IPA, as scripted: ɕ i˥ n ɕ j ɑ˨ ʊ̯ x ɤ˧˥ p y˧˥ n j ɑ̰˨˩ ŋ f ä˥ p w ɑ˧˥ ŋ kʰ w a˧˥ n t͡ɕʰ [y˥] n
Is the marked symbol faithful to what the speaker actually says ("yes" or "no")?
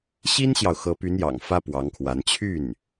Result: no